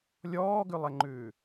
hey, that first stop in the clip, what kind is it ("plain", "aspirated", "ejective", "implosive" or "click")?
plain